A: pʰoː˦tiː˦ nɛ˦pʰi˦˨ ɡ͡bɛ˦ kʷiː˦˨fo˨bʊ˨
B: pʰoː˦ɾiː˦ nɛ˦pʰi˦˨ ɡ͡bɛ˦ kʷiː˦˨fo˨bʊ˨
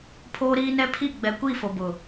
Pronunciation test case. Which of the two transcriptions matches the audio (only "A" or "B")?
B